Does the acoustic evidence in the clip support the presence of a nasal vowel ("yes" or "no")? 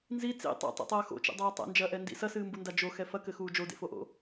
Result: no